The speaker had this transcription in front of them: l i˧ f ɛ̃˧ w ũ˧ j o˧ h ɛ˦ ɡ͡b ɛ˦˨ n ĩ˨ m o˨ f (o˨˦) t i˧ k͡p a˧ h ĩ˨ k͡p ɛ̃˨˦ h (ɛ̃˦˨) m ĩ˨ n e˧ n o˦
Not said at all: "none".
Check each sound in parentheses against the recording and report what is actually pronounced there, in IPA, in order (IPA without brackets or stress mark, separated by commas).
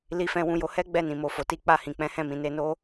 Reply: o˨, ɛ̃˦˨